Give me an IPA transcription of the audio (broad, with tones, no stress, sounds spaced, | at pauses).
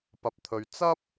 p ɐ˨ p̚ t̪ʰ ɵ˨˧ ɥ t͡s ɐ˥ p̚